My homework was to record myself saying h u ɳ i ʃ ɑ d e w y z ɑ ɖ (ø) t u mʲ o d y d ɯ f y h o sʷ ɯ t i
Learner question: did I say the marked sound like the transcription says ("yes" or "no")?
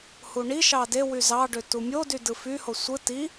yes